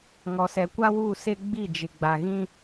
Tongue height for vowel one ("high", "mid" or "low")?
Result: mid